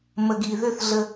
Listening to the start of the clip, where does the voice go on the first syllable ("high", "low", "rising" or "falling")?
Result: low